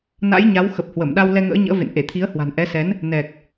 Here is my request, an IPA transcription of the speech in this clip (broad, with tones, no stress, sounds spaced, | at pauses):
n a̰˧˥ j ɲ a˨˦ w x ə˨˩ p̚ h w ə˧˩ m ɗ a˧ w l ɛ˧ ŋ ə̰ː˧˥ ɲ ə̰ː˧˥ v ḛ˧˨ n ʔ e˧˩ t̪ʰ i˨˦ ə̯ h w a̤˨˩ n ʔ ɛ˨˦ s ɛ˨˦ n | n ɛ˨˩ k̚